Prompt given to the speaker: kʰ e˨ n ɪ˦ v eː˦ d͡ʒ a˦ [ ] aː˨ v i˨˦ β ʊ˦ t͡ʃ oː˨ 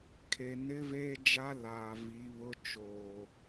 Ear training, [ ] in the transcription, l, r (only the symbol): l